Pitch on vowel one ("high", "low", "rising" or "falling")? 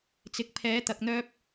rising